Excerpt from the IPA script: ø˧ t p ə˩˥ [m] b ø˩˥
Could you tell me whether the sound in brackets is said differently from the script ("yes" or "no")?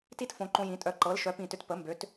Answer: no